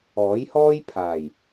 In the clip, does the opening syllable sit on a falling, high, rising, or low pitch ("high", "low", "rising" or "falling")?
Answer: rising